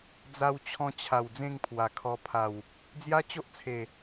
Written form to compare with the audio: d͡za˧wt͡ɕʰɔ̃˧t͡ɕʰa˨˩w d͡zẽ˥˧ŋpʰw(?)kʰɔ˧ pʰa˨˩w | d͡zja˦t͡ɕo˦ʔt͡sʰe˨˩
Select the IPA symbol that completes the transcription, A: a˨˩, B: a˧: A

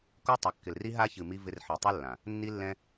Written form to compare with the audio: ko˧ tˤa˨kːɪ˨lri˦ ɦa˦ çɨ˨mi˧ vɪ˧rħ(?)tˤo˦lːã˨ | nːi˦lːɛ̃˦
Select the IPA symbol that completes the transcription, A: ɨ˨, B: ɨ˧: A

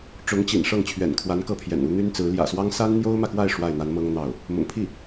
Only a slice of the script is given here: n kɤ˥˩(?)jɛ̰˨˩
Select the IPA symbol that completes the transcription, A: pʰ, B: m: A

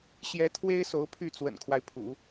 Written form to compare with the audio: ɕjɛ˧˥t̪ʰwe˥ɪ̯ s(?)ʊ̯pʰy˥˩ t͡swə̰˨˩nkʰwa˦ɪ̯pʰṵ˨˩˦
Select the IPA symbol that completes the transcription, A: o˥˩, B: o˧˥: B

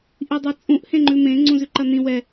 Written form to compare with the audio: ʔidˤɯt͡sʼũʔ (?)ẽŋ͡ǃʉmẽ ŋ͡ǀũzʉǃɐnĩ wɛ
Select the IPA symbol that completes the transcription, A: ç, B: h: B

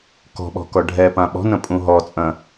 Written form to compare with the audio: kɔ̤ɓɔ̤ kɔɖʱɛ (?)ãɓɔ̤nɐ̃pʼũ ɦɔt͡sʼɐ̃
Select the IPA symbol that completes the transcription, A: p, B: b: A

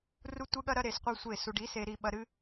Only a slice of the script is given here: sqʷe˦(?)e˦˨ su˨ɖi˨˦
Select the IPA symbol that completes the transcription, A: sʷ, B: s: A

